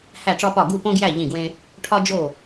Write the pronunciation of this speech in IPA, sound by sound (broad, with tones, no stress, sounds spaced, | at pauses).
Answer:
h æ˥˨ ʈ͡ʂ ɒ˥ p ɒ˥˨ ɡ u˥˨ p õ˥ ɡ j æ˥˨ ʎ ĩ˥˨ ɡ w ẽ˥ | ʈʰ ɒ˥ d͡ʒ o˥˨